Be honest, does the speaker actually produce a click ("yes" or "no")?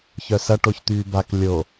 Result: no